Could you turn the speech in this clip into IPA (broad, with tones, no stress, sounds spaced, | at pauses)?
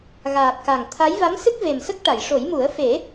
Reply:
ɣ aː˨˩ p̚ k a˨˩ ŋ t̪ʰ a˧˥ j v a˧˥ m s ɨ˦˥ k̚ v e˨˩ m s ə˦˥ k̚ ʈ a˨˩˨ j ʂ o˨˩˦ j m u˨˩˦ ə̯ f e˨˩˦